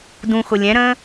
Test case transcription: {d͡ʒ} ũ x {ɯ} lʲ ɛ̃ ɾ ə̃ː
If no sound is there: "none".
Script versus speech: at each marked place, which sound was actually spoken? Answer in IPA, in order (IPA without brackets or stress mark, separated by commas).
d, ʊ